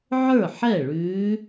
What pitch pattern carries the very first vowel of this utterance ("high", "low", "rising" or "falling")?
falling